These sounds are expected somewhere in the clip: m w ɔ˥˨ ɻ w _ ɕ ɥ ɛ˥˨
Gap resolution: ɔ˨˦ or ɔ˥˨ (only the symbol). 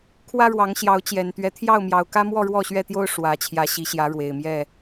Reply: ɔ˥˨